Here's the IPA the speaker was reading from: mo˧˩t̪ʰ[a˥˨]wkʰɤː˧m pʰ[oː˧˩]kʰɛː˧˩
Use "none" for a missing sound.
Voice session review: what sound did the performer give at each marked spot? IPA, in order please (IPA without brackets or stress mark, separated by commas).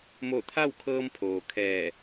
a˥˨, oː˩